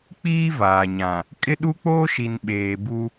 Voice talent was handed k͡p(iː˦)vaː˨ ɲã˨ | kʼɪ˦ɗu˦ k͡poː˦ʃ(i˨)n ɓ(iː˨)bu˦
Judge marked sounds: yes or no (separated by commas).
yes, yes, no